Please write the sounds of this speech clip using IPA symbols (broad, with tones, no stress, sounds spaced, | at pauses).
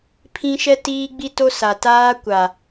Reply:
pʰ ĩ˦ ʃ ɛ˦ t iː˦ ɡ͡b i˦ t o˦ s a˨ t aː˦ kʷ a˨